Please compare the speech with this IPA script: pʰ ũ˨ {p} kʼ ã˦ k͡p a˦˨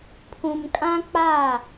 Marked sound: incorrect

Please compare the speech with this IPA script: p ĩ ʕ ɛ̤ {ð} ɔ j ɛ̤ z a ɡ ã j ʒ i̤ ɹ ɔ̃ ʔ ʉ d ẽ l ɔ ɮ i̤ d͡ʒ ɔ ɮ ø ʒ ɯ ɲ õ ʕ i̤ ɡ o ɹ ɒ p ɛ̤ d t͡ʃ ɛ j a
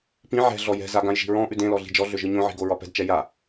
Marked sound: incorrect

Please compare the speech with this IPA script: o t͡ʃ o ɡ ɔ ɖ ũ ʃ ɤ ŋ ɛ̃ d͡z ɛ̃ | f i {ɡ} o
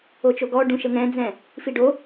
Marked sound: incorrect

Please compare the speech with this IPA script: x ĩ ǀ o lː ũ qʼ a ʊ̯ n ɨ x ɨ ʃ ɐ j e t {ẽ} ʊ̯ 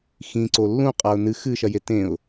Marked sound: correct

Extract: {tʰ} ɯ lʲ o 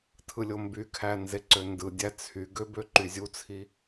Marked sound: correct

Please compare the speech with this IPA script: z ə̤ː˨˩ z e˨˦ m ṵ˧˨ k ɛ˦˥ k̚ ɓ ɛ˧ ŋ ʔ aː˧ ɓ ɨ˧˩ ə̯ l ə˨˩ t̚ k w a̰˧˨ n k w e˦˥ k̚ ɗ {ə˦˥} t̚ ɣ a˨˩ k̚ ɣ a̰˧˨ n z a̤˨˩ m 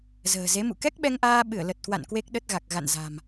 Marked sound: correct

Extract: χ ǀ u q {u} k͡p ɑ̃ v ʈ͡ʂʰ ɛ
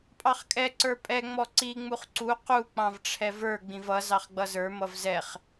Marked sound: correct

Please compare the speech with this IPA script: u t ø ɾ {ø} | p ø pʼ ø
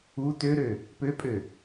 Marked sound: correct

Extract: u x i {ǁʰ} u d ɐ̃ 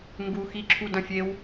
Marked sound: correct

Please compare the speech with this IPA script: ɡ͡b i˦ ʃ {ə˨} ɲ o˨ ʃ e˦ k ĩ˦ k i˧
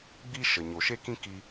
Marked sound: correct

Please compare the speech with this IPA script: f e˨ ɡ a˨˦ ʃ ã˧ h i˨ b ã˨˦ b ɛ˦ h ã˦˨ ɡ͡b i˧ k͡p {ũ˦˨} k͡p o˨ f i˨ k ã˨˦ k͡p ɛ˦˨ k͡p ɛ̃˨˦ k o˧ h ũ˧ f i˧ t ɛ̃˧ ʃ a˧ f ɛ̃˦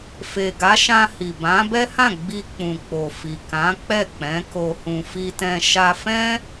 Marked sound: incorrect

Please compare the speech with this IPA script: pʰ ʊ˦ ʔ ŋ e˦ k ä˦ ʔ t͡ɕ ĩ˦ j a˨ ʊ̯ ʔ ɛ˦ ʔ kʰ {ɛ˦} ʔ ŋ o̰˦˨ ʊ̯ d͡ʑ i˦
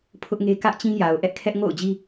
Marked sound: correct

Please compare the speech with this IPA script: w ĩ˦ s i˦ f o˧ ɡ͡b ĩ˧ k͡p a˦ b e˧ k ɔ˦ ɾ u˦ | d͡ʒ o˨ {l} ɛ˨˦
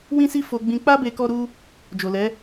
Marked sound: correct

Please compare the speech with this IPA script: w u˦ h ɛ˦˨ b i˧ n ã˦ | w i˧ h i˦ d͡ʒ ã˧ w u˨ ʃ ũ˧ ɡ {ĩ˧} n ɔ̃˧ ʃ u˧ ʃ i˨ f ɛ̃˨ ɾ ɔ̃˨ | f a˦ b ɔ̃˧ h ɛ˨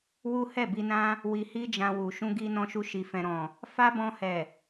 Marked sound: incorrect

